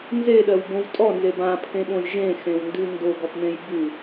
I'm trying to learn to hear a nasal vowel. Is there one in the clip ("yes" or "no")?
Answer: yes